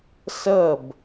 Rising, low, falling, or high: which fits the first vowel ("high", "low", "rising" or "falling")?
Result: falling